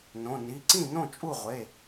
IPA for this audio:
n õ˩˧˩ n i˩˧˩ ǀ ĩ˥˩ n õ˥˩ t͡ʃʼ u˥˩ ʁʷ e˩˧˩

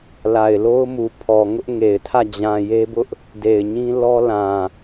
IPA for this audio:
l a˨ ɪ̯ l o˦ ʊ̯ m u˨ pʰ ɔ˨ ŋ ʊ˦ ʔ ŋ e˨ ɪ̯ tʰ ä˦˨ d͡ʑ ã˨ j e˦ b ʊ˦ ʔ | d e˨ ɪ̯ ɲ ĩ˦ l ɔ˦ l ã˨

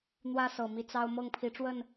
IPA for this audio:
n̪ w ä˦ s ɤ˨˩ m i˨˦ t͡s ɑ˦ ʊ̯ m ɤ˥˨ ŋ pʰ i˨˦ ʈ͡ʂ w ə˥˨ n

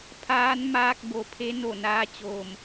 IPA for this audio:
pʰ aː˧˥ n m aː˧ k̚ b o˩ pʰ e˧˥ n o˧˩ n aː˧˥ t͡ɕ oː˧˩ m

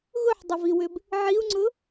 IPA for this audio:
ɣ ʊ ħ dˤ ə v i w ʏ b | ʕ i u̯ ŋ͡ǀ ʊ

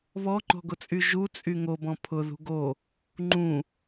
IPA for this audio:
β ɔ ŋ͡ǃ ɔ̤ ɡ ʊ t͡sʼ y ʒ u t͡sʼ y ŋ o b ɔ̃ pʰ ʊ ð ṳ ɡ o | ŋ͡ǃ ũ

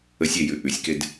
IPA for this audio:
ə sʲ e j ʉ ʔ ʉ sʲ k e d

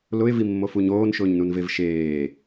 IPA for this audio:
l ʊ ɪ̯ v i mː o f u ɲ oː n ʃ ʊː ɲ n u n v e v ʃ eː

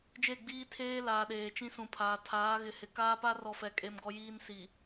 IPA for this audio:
d͡ʒ e˦˨ ɡ͡b iː˦ tʰ eː˦ l aː˨ ɗ eː˨ t͡ʃ ĩ˦ s ũ˨ pʰ aː˨ tʰ aː˨˦ ɣ ɪ˨ h ɪ˨ k aː˦ p a˦ r ɔ˨ f ɛ˨ kʼ e˦ m ɡ ɔ˦ j iː˦ n s i˨

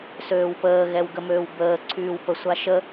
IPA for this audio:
s øː w p əː ɣ ɛ w ɡ ə m øː w b əː ǀʰ yː w p ə sʷ a ʃ ə

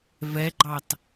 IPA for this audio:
v ɛ ɡ͡ǃ ɑ t

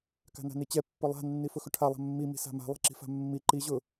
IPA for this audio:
k a̤ n a̤ n i t͡ɕ ɛ pː ʊ lˠ a̤ nː i f ʊ x ʊ ʈʰ a lˠ a̤ mː i m i̤ s a̤ m a̤ lˠ i̤ ǁ i̤ f a̤ mː i ǃ i ʑ ʊ

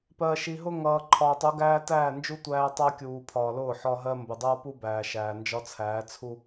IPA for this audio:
p ɜ˨ ʃ i˨ ɦ ʊ˦ ŋ ʌː˨ ǃʰ ɒː˨ tˤ u˨˦ ɡ æː˦ t æː˦˨ n d͡ʒ u˦ tʷ æː˦ tˤ ʌː˦ kʲ uː˨ pʰ ɒː˨ l ʊː˦˨ ħ ɒ˦ ɦ ɜ˦ m b ʊ˨ dˤ ʌː˦ p u˦ b æː˨ ʃ æː˨ n d͡ʒ ɒ˦ t͡sʰ æː˨˦ t͡sʰ u˦

